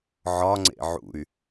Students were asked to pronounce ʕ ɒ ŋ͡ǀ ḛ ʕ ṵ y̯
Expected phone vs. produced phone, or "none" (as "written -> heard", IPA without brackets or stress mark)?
none